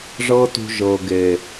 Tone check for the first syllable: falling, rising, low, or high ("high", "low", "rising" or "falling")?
high